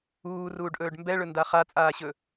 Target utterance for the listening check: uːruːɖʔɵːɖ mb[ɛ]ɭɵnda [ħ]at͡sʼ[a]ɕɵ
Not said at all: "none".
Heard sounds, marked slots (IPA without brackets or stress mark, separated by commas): ɛ, χ, aː